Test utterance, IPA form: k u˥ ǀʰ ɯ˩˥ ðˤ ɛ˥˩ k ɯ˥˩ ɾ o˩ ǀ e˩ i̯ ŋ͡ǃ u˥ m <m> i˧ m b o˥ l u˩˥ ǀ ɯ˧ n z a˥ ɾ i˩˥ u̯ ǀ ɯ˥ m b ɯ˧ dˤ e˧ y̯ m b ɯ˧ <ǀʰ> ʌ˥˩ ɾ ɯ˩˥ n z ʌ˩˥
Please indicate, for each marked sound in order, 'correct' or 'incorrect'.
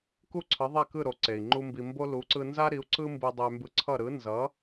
incorrect, correct

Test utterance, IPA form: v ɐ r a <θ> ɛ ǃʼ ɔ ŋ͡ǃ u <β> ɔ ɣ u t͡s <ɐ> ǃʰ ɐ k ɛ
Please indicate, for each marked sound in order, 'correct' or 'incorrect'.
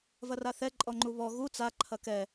correct, correct, incorrect

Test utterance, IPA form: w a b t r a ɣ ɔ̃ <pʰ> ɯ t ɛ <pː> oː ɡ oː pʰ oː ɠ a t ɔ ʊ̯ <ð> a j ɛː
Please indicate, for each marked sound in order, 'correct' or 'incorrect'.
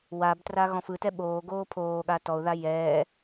incorrect, incorrect, correct

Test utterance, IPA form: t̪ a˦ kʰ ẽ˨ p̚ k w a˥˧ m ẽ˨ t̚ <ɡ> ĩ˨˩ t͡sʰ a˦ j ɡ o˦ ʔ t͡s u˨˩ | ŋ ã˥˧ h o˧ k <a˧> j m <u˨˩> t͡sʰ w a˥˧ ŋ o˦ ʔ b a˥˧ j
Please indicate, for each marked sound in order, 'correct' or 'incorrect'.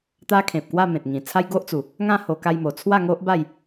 incorrect, correct, incorrect

